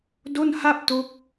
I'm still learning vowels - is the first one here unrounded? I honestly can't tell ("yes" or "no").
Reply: no